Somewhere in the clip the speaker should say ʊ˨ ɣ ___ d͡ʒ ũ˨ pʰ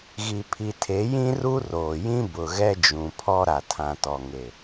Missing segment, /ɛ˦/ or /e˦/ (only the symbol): ɛ˦